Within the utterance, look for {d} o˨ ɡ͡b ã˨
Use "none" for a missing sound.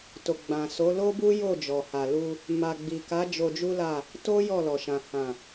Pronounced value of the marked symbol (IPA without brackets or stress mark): t